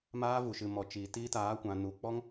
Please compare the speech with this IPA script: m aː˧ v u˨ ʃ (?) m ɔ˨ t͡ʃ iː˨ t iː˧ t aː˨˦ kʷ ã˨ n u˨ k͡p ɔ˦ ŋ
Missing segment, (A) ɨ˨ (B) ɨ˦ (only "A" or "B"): A